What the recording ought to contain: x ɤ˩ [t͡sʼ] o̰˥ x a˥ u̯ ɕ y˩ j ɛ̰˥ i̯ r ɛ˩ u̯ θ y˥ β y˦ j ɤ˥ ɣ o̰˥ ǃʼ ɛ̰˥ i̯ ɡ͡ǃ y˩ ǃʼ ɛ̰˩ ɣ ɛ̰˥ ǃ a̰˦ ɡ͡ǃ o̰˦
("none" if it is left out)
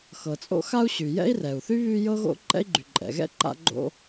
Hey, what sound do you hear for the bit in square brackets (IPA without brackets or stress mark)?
t͡sʼ